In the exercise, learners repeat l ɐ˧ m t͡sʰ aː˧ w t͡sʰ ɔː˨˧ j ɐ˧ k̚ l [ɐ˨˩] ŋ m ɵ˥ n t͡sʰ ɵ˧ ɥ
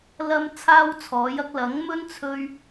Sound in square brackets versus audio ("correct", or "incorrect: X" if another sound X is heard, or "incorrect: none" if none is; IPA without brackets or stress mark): incorrect: ɐ˨˥